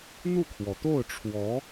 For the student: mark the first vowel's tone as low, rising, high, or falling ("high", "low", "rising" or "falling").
falling